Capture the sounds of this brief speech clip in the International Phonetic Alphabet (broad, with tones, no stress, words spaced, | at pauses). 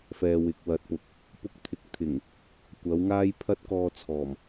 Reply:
fɛː˨wɪ˨k̚ wɐ˨t̚pʊ˨k̚ | pʊ˧k̚t̪ʰɪ˨˥k̚t̪ʰɪ˨˩ŋ | kʷɐ˨˥wŋaː˥j pʰɐ˥t̚kɔː˧t͡sʰɔː˨˩m